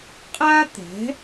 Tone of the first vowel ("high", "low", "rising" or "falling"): high